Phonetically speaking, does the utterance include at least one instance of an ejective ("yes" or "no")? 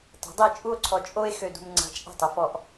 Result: yes